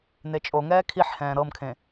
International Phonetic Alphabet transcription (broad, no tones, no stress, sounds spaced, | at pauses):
n e t͡ʃʼ o ŋ ɛː kʰ i ħ h ɛ̃ː ɾ ɤ m kʰ ẽ